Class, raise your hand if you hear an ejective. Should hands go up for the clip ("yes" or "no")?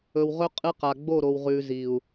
yes